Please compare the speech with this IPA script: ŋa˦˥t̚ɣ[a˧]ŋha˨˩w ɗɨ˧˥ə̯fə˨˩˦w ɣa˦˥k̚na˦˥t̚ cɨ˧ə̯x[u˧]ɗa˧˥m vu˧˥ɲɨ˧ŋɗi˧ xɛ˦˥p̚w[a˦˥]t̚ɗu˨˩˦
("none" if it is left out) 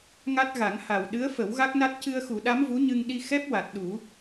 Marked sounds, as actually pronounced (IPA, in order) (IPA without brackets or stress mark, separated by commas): a˨˩˦, u˨˩˦, a˨˩